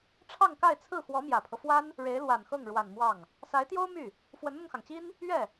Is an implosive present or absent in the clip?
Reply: absent